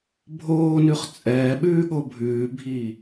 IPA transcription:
bʱ oː n ʉ χ t͡sʼ ɛː ɓ ʉː ɠ o bʱ ʉː bʱ iː

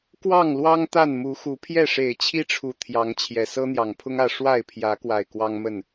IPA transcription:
k w ɑ˥˨ ŋ l w ɑ˦ ŋ t̪ a˥˨ n m u˨˦ x u˨˦ pʰ j ɛ˥˨ ʂ e˨˩ ɪ̯ t͡ɕʰ i˦ ʈ͡ʂʰ u˨˩ t̪ʰ j ɑ˨˦ ŋ t͡ɕʰ j ɛ˨˩ s ɤ˦ n̪ j ɑ˨˩ ŋ pʰ ʊ˦ ŋ ä˥˨ ʂ w a˥˨ ɪ̯ pʰ j ä˨˦ k w a˨˩ ɪ̯ k w ɑ˦ ŋ m ə˥˨ n

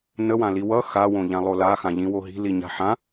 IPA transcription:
n ə w ã l i w ʌ x a w õ ʎ ã lˠ o l a x ã ʎ ĩ w o ɦ i̤ l i ɲ a̤ ħ ã

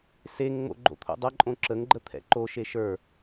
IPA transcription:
s e ŋ ŋ͡m o̰ ɡ͡ǃ o̰ t̪ʰ o̰ dˤ ɐ ǃʼ õ ǁ ə ŋ ɡ͡ǃ ə t̪ʰ ɛ̰ ǃ o ʃ e ʃ ə˞

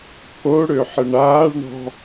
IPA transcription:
pʰ o ɽ ø ħ ə ɳ aː ɭ ɳ ɔ̤

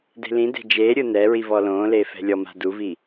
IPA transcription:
d e̤ l ĩ d e̤ d͡ʒ eː ɾʲ ɯ n ɛ ɹ i v ɔ l õː l eː f ɛ̤ lʲ ɔ m a̤ d u v i

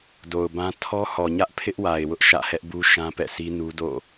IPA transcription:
d o˨ ʊ̯ b ã˦ tʰ ɔ˦ h ɔ˨ ɲ ä˦ ʔ pʰ ɪ˦ ʔ w a˨ ɪ̯ w ʊ˦ ʔ ʃ ä̰˦˨ h ɛ˦ ʔ b u˦ ʃ ã˦ p ɛ̰˦˨ s i˦ n u˦ d o̰˦˨

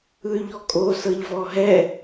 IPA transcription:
ɯ y̯ ʎ ɔ kʼ o s ɤ ʎ v ɔ ɦ ɛ

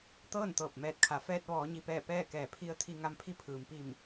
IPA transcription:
t̪ ɤː˥˨ n t̪ ɤː˧˩ p̚ m ɛː˧˩ t̚ kʰ a˩˧ f ɛː˧ t̚ ʋ ɔː˩˧ ɲ i˩ p ɛː˧˩ p ɛː˥˨ k ɛː˧˩ pʰ i˧ ə̯ t̪ʰ i˧ ŋ a˧ m pʰ i˧˥ pʰ ɯː˩ m p i˧˩ m

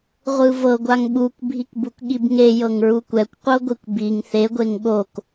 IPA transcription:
ʁʷ ɯ v ɤ ɡʷ a ŋ ɓ u kʷ bʱ i k b u k ɠ i b ŋ e j ɤ ŋ ɹ u kʷ ɛ kʷ qʷ ɤ ɡʷ i kʷ b i ŋ θ e ɡʷ e ŋ ɠ o k

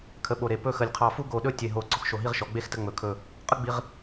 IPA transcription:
kʰ ə˧ ɓ o˧˩ ɾ e˧˩ p ɵ˥˧ x ə˧˩ lʲ qʰ ɑ˧˩ f u˥ ɡ o˧˩ ɗ ɵ˥˧ tʲ e˧˩ ɦ o˧˩ ɡ͡ǀ ɔ˧˩ x ʃ o˧˩ ɦ i˥˧ ʁ ʃ ɔ˩˧ ɡ͡b e˥˧ x t ə˧ ŋ͡m ɵ˩˧ kʰ ɵ˧˩ | qʼ ə˥ ɡ͡b i˧ ʁ

